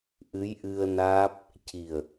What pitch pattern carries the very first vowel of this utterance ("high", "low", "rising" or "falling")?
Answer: rising